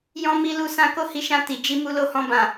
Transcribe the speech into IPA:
jɔ̃˧mi˧lu˧ sã˧ko˦hi˧ʃã˧ ti˨d͡ʒi˧ mu˧lo˧hɔ̃˧ bã˨

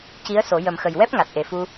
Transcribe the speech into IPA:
ci˧˥ə̯ so˨˩˦ jə˨˩mxə˨˩jwɛ˦˥p̚ ŋa˨˩t̚ʔe˨˩fu˧

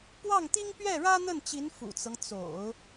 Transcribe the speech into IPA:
pwɑ˥˩ŋt̪i˥ŋ pɥɛ˥˩ɻä˥n̪ə˥˩nt͡ɕi˧˥n fṵ˨˩t͡sɤ˦ŋ t͡so̰˨˩˦ʊ̯

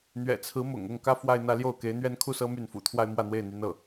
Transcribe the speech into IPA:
n̪ɥɛ̰˨˩t͡sʰɹ̩˧˥ mʊ̰˨˩ŋ ʊ˥˩ŋkä˥fwa˥˧ɪ̯ n̪ä˥˧ljo˥˩ʊ̯ke˧˥ɪ̯n̪ɥɛ˥n kʰu˥sɤ˥my˥˩nfṵ˨˩ t̪ʰwa˥ɪ̯mwä˥˧n̪we˥˩ɪ̯ n̪y˥nɤ˥˩

